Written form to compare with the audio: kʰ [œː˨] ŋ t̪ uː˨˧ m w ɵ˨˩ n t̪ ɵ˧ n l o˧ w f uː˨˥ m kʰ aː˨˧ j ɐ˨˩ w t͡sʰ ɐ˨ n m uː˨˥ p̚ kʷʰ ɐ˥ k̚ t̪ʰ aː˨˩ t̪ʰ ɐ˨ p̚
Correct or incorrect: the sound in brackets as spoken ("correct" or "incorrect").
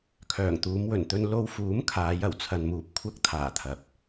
incorrect